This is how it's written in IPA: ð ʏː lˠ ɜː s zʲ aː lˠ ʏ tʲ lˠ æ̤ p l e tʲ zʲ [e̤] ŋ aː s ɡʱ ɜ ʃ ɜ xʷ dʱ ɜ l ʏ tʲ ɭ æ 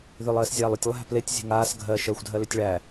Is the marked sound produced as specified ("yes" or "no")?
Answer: yes